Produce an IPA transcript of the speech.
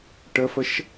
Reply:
ʈ ə f ə ʃ

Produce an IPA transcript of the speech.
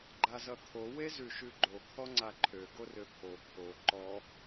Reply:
ɡ͡ǃ a z ʌ t̪ʰ o w e z ʉ ʃ ʉ ɡ͡ǃ o kʰ ɔ ŋ͡ǀ a ǃʰ ø ɡ o r ø pʰ o kʰ o ǃ ɔ

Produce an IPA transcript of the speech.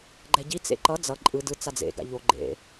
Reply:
ɡ͡ǃ ɛ ɟ i t͡s ḛ ǃ ʌ d͡z ʌ ǃʼ ɯ d ɯ t͡s a d͡z ḛ ɡ a̰ ʎ o ɡ͡ǃ ḛ

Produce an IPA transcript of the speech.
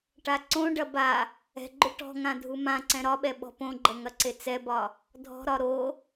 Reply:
ʈ a ǀ õ ɖ ɐ b a | ɛ̤ ɡ͡ǃ ʏ ʈ ɔ̤ ŋ ã dʱ u m ã ǀ ɛ̃ ɾ ɒ ɓ ɛ ɓ ɔ̤ p õ ɡ͡ǃ ɐ ŋ ɐ ǀ e t͡s ɛ b ɒ | dʱ ɔ̤ ɾ ɒ ɾ o

